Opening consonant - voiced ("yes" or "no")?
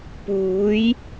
no